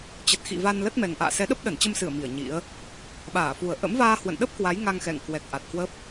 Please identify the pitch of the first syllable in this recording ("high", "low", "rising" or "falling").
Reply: low